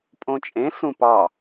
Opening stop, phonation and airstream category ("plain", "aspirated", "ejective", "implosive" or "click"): ejective